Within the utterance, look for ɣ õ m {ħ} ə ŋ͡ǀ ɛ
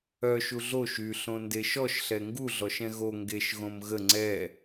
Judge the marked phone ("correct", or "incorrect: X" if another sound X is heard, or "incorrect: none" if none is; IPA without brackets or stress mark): incorrect: ɣ